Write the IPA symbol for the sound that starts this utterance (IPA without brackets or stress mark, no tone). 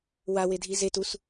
w